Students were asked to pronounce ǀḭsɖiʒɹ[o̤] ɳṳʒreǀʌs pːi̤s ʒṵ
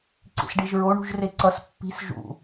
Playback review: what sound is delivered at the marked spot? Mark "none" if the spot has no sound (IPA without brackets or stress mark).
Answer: o